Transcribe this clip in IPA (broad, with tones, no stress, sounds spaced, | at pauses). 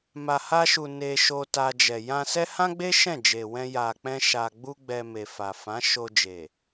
m a˨ h a˧ ʃ u˨ n e˧ ʃ o˧ t a˧ d͡ʒ ɛ˨ j ã˧ s ɛ˦ h ã˦ ɡ͡b e˦ ʃ ɛ̃˦˨ d͡ʒ e˨ w ɛ̃˧ j a˨ k͡p ɛ̃˧ ʃ a˧ ɡ͡b u˦ ɡ͡b ɛ˧ m e˨ f a˨ f ã˨˦ ʃ o˧ d͡ʒ e˨